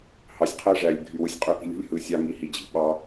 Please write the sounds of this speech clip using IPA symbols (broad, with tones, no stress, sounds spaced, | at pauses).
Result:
h ɑ˨ sʲ qʰ æ˦ ʐ æ˨ lʲ ɡʱ y˧ w ɯ˧ sʲ qʼ ø˦ ʔ i̤˦ lʲ ṳ˦ lʲ h ɯ˨ sʲ ɑ˧ ŋ i˨ h i˨ d͡ʑ i̤˨ ɓ ɑ˧